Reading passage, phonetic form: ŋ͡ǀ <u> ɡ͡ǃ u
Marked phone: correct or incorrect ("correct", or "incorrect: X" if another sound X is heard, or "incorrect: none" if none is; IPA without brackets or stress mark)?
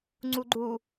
correct